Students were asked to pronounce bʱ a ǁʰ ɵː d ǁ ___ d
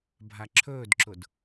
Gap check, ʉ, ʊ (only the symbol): ʊ